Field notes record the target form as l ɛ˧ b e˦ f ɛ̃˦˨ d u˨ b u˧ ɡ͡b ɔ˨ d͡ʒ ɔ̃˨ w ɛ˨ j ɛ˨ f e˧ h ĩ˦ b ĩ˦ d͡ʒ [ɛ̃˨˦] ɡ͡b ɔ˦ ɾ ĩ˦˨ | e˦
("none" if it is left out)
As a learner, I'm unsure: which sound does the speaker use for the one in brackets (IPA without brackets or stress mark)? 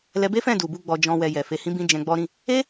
ɛ̃˧